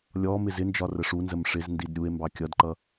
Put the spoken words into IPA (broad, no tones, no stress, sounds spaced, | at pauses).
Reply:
lʲ ɔ m ɪ z ɪ n d͡ʒ ɒ r ə ʂ u n z ə m ʂ ɪ z n d i d ɾʲ u e̯ m b ɑ kʲ ʌ d ǃ ʌ